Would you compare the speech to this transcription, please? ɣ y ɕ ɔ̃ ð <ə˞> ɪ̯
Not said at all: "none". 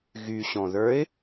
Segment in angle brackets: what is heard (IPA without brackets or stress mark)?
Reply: ə˞